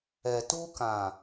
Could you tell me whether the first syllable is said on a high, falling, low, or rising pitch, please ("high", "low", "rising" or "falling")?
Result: low